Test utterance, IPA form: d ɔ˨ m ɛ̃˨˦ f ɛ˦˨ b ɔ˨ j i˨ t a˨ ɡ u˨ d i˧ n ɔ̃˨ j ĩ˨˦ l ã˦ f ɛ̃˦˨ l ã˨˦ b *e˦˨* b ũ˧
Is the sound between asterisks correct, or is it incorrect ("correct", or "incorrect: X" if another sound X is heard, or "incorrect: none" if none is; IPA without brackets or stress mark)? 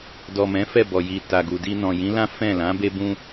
incorrect: e˧